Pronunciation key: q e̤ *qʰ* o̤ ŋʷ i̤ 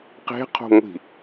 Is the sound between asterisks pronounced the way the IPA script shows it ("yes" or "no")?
yes